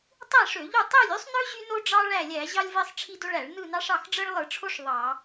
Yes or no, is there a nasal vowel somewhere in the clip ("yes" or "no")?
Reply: no